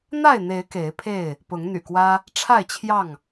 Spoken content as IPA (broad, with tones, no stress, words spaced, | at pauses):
n̪a˥˨ɪ̯n̪e˨˦ɪ̯ ke˨˦ɪ̯pʰe˥˨ɪ̯ | pʊ˨˦ŋn̪y̰˨˩kwä˦ | ʈ͡ʂʰa˥˨ɪ̯t͡ɕʰjɑ˥˨ŋ